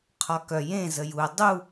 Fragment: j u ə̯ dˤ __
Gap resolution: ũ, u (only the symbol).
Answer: u